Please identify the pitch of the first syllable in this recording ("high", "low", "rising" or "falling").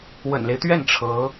low